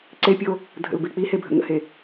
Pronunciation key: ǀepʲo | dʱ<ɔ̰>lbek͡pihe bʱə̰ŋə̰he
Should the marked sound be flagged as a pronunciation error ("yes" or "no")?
yes